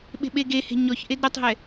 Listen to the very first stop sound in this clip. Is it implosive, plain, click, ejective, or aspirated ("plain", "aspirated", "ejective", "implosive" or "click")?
implosive